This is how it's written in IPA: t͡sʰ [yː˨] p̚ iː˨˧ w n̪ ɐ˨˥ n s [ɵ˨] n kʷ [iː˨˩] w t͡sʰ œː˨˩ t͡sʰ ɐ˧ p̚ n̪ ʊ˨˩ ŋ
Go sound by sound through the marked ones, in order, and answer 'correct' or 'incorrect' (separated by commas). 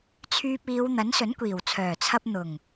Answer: incorrect, incorrect, correct